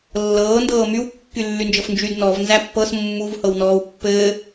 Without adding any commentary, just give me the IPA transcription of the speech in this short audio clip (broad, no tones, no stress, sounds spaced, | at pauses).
lː ɤː n d ɤː m y w kː y lː y n d͡ʒ ɤ f n d͡ʒ y d n ɔ v n z æ pː ɤ s mː u v h ɤ w n ɔː w pː ɘː